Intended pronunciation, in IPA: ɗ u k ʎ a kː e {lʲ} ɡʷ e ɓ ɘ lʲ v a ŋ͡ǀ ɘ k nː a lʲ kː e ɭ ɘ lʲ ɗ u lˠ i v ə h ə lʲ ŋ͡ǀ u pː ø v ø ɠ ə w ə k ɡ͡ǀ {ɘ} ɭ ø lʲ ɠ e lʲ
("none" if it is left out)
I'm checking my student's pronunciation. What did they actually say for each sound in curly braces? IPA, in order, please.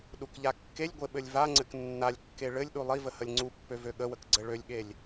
lʲ, ɘ

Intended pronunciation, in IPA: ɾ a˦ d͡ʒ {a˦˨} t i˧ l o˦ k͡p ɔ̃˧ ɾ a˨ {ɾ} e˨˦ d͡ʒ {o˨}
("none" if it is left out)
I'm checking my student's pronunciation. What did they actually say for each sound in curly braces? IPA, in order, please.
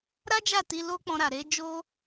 a˦˨, ɾ, o˦

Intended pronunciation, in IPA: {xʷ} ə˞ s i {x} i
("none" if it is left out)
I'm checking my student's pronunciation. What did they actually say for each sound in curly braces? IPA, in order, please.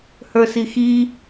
h, x

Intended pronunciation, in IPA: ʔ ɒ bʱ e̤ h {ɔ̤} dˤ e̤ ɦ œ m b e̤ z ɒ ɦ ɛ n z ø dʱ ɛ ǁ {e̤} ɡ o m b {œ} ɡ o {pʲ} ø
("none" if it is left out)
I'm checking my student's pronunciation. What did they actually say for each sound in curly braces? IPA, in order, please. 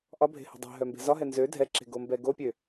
o̤, e̤, ɛ, pʲ

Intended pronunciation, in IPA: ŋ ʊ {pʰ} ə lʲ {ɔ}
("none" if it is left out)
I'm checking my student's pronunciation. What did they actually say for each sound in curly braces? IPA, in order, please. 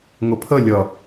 pʰ, ʌ

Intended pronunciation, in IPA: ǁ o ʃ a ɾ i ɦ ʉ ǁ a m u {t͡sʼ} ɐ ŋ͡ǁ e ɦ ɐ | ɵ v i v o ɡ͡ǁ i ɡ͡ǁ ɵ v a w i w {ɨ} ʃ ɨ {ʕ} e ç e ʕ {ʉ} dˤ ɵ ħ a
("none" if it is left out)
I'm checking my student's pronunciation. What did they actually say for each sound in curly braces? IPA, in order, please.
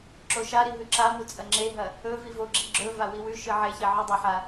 t͡sʼ, ʉ, ʕ, ʉ

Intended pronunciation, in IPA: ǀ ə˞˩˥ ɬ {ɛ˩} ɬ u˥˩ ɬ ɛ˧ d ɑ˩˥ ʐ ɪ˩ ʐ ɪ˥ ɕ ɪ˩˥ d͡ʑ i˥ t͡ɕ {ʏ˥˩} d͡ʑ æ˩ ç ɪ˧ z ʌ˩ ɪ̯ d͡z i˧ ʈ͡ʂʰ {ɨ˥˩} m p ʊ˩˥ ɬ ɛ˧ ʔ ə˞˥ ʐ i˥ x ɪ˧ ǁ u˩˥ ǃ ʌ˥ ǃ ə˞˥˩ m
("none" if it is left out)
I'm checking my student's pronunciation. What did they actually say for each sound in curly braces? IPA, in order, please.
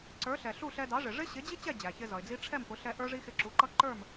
ɛ˩, ɛ˥˩, ɛ˥˩

